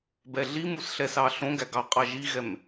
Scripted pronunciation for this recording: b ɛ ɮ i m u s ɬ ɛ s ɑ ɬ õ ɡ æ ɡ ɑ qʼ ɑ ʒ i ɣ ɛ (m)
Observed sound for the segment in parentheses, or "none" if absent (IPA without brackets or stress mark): m